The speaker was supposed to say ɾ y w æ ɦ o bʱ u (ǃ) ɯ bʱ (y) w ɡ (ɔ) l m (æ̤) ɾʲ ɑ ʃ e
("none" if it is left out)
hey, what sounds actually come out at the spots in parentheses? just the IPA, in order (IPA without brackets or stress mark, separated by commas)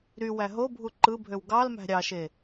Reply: ǃ, ø, ɑ, æ̤